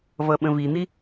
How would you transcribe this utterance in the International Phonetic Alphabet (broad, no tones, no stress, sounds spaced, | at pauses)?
v ʌ ɓ ə̃ v i n̪ i